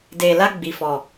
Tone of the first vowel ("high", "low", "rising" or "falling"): low